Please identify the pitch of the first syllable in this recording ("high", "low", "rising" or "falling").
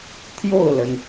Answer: falling